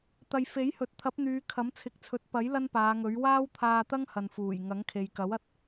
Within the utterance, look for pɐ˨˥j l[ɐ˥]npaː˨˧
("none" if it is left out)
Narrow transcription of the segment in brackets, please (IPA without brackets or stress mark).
ɐ˥